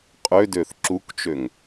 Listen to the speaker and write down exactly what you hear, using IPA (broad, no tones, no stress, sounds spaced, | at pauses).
qʼ ø d ø θ ǁ u k t͡ʃ ø ŋ